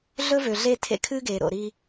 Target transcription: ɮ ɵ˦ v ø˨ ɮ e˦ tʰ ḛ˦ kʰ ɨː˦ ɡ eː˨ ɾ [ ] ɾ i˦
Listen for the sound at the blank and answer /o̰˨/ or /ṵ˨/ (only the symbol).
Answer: o̰˨